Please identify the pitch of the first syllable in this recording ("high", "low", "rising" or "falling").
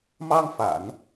high